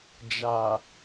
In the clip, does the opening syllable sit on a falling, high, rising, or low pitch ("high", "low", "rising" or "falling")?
low